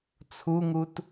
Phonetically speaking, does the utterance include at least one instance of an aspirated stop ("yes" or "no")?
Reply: yes